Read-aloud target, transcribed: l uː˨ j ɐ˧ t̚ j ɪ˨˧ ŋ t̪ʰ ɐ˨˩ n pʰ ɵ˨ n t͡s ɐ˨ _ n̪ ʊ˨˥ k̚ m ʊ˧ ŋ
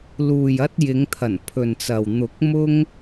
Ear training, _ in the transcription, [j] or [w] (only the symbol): w